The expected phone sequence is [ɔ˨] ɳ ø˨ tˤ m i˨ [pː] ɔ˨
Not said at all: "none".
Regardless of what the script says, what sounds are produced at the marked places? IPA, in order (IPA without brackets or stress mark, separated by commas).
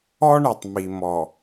ɔ˦, m